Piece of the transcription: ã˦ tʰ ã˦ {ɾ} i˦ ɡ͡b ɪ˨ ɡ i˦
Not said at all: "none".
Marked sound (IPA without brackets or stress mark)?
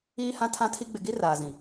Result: tʰ